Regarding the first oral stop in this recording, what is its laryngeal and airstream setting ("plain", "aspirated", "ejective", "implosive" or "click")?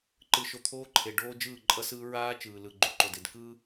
click